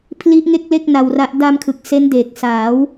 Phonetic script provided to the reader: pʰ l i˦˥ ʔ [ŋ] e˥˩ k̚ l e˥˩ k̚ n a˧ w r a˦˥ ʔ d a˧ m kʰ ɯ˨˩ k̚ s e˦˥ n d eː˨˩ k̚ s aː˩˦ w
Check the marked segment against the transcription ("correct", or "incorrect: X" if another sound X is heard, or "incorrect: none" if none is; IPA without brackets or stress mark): correct